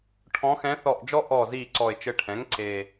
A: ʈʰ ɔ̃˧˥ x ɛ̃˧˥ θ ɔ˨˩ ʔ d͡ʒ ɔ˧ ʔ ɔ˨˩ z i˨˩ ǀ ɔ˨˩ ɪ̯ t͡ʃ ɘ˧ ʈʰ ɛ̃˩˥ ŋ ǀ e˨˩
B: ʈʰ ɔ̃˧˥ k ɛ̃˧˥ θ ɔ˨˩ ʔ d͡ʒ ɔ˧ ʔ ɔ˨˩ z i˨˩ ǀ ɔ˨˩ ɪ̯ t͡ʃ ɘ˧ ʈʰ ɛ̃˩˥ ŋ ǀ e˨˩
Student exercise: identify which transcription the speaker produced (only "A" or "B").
A